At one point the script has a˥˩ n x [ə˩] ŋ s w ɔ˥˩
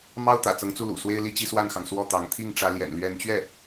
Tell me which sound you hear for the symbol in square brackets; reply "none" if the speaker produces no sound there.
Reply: ɑ˩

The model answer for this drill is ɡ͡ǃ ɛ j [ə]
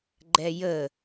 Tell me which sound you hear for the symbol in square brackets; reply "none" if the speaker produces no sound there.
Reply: ə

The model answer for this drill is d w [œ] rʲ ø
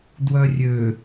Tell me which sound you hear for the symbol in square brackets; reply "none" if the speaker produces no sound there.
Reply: œ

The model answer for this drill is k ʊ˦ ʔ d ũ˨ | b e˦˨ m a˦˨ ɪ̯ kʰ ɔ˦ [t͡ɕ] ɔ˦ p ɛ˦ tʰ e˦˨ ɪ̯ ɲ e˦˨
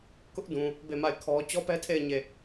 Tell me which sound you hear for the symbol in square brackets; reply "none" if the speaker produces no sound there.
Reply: t͡ɕ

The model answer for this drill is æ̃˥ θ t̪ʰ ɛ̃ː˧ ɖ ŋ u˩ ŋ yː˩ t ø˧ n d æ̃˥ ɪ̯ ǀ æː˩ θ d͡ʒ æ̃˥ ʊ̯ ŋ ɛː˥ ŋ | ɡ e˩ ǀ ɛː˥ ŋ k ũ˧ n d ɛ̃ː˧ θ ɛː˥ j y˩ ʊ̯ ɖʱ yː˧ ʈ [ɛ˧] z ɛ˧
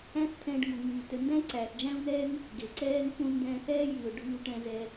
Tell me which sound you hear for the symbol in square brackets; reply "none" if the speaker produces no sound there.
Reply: ɛ̃˧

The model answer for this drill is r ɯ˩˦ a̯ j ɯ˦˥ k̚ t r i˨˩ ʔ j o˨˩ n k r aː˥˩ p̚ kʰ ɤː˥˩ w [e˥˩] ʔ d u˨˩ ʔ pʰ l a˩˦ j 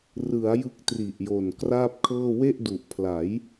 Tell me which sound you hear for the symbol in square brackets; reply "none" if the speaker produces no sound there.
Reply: e˥˩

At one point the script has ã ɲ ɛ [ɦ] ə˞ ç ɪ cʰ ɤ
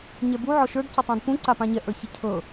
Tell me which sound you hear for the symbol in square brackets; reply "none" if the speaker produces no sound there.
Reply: ʔ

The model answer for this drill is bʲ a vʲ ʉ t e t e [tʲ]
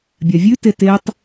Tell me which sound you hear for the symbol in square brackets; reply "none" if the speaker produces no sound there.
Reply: tˤ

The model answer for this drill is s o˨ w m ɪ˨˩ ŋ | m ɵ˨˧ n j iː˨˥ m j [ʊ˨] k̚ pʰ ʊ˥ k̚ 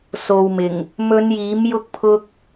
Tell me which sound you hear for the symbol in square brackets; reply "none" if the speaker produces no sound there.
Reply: ʊ˥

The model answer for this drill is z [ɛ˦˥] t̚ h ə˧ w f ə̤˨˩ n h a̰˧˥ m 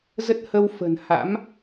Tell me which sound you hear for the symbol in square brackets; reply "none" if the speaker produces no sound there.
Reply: ə˦˥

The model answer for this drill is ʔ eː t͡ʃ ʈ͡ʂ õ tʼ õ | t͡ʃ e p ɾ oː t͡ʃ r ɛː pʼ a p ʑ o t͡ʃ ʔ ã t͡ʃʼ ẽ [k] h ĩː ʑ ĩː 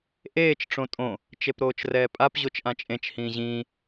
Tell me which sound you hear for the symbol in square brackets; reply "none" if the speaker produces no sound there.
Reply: t͡ʃ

